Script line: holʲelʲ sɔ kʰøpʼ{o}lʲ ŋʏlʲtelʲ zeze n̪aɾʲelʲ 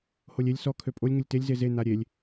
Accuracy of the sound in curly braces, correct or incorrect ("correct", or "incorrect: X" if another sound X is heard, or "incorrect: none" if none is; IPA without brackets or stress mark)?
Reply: correct